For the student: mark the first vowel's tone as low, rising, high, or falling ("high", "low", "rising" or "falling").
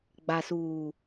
low